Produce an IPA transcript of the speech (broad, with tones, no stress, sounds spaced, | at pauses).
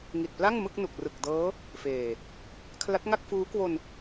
ŋ i˨˩ t̚ p l a˥˩ ŋ m ɯ˥˩ k̚ n u˨˩ k̚ r ɯ˨˩ k̚ d ɤː˦˥ | f eː˨˩ | kʰ l a˦˥ t̚ ŋ a˥˩ k̚ f uː˦˥ k w o˧ n